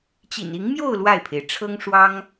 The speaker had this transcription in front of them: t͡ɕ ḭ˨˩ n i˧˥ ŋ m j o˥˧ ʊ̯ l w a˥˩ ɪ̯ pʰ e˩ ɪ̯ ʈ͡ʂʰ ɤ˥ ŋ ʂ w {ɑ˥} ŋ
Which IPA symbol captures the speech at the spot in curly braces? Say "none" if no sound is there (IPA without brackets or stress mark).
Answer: ɑ˥